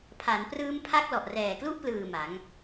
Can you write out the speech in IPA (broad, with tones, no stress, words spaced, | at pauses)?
pʰa˩˦nprɯː˦˥mpʰa˦˥k̚lɔ˨˩ʔ rɛː˨˩klu˥˩ʔplɯː˨˩ ma˩˦ŋ